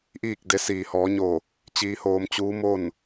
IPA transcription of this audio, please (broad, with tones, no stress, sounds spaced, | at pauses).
ʔ iː˥˨ k̚ d e˧˥ s iː˩ h ɔː˩˧ ɲ o˧˩ | t͡ɕ iː˧ h oː˧ m t͡ɕ uː˧˥ m o˥˨ n